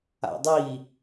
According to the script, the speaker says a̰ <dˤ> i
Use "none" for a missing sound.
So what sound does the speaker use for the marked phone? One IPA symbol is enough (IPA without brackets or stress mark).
dˤ